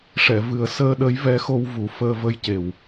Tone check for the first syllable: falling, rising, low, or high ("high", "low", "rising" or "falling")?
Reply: low